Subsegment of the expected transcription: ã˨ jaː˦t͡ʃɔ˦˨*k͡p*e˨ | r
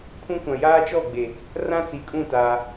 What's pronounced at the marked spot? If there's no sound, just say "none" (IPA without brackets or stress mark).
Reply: ɡ͡b